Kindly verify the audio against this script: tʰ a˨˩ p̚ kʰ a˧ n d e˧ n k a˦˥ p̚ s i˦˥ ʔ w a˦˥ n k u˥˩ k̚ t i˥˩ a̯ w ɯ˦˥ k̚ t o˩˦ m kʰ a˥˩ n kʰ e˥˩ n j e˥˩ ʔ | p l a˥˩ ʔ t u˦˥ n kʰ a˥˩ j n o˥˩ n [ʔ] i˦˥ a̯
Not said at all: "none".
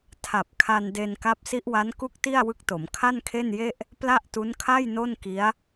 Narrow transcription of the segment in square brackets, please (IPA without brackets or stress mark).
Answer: k